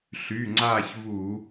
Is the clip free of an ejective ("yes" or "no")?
yes